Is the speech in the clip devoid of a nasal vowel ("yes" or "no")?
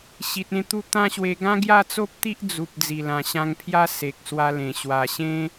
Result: no